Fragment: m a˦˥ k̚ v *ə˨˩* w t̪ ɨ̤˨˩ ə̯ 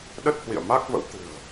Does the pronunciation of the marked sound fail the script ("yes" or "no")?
yes